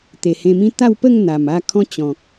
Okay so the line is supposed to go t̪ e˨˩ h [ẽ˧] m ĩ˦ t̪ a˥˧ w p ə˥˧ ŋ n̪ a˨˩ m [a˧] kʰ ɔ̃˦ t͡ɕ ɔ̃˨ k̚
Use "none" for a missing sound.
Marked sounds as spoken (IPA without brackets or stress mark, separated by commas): ẽ˧, a˥˧